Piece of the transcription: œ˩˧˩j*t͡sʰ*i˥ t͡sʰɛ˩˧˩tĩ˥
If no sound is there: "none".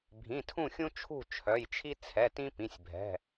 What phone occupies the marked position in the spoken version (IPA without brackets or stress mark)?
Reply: t͡ʃʰ